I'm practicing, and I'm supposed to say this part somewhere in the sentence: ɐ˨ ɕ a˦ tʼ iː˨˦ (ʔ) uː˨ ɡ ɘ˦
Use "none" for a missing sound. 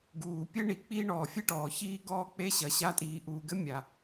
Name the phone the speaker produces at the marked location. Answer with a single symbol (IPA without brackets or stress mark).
ʔ